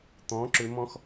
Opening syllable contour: rising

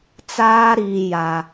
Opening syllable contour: high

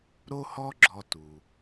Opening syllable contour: high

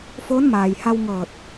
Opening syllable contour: rising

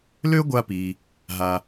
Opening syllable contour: high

